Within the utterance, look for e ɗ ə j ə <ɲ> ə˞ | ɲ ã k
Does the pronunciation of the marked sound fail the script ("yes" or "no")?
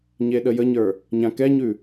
no